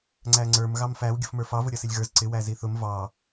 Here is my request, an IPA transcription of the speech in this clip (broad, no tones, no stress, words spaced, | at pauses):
ŋ͡ǀæŋ͡ǀə˞m ɣɑmfæw ɡʲʊfmə˞fɑ vʊɾʲʌsɪlʲɣə˞z ǀɪ wæziθʊm vɑ